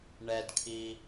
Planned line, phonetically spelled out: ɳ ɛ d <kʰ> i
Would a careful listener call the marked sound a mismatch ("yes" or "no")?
no